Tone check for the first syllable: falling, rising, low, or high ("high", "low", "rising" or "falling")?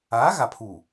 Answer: rising